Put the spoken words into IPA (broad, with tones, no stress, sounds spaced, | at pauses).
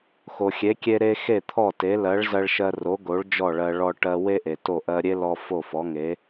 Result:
x o˩ xʲ e˩˥ kʲ e˧ ɾ e˧ x e˥˩ t̪ʰ ɔ˥˩ t e˩˥ l ɜ˩˥ ɭ z ɜ˧ ɭ ʃ ɜ˧ r o˩˥ ɡ o˩˥ ɭ d͡ʒ ɔ˥˩ ɭ ɜ˧ ɭ ɔ˧ ʈ ɜ˧ w e˥ ʔ e˩ t o˥˩ ʔ ɜ˧ ɾʲ e˥ l ɔ˧ f o˥˩ f ɔ˩˥ ŋ e˩˥